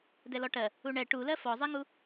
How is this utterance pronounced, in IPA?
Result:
dɛlɔʈɜ | uɳɛ ʈulɜ fɔzˤeŋu

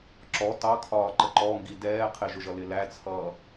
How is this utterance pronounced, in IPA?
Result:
ǁɔ tɑkʰɒːǃə ǃɔŋɡi dɛː qʰɪʒʊʒʌlɪ læt͡sʰʌː

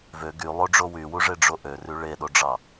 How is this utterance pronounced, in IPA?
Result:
vø ɡylˠoɖ͡ʐo wywuʐeɖ͡ʐo ʔøry ɭeɗoɖ͡ʐɑ

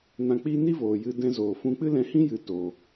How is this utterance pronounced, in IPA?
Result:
nã˧k͡pi˦ ni˦voː˨jɨ˧ dɛ̃˧zoː˨fũ˧ k͡pɨ˦lɛ̃˧hĩ˦jɨ˨˦ to˧

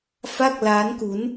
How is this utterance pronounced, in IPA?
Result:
fa˥˩k̚ laː˦˥nku˦˥n

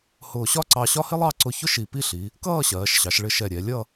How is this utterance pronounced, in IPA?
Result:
hʊː˧˩ɕɒ˥ǀɑ˧ɕɒ˥ hɪ˥lˠɑ˥˧ǀʊ˧çʊ˥ ʃi˧˩pi˥˧ɬi˩˧ | kʌː˥˧ɕɜː˩˧ʃɕɑ˩˧ʃ ɭɪ˧ʃɛ˧˩ɾʲɛ˩˧lʲʌ˥˧

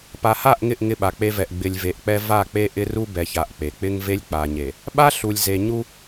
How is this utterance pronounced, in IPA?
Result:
pa˨ha˦˨ʔŋɪ˦˨ʔ ŋɪ˦ɓa˨k͡pe˦vɛ˨ʔ ɡ͡bɪ˨lʲve˨ʔk͡pɛ˦ va˦˨k͡pe˦ʔɪ˦ ru˦bɛ˨ça˨ʔ k͡pe˨ k͡pɪ˦ŋve˦lʲk͡pa˨ɲe˨ | ɓa˦ɬu˨lʲze˨ ɲu˦

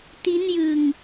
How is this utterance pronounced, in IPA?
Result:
ti˦˥njɯ˧ŋ

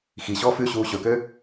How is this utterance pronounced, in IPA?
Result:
xiɕɔːf ʉɕuː ɕɵkø

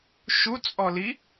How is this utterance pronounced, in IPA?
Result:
ʃut͡sʼɔli

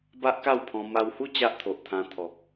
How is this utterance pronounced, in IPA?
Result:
ba˦ʔka˥˧wpʰɔ̃˧ ma˧whu˥˧ t͡ɕa˦ʔt̪ʰo˨ʔ t̪ʰã˧ t̪ʰɔ˨k̚

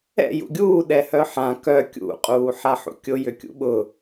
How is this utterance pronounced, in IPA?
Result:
ɛ̰ jṵɡʲuː ɗɛhœħã kœ kʲṵ qʼuːħaħṵkʲʊ jʏkʲṵɓʊ

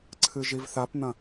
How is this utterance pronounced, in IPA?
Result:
ǀʰɨʒivθapn̪ɐ̃

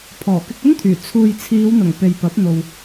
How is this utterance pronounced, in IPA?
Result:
pʰɔː˨˩kɪ˧k̚ɵ˥nt̪ʰyː˨˩ t͡sʰuː˨jt͡sʰiː˨˧wn̪ʊ˨˩ŋ pe˨jpɐ˨˥p̚ n̪o˨w

